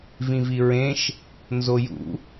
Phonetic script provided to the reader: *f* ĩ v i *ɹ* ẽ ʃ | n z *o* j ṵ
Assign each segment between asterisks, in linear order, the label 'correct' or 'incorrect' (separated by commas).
incorrect, correct, correct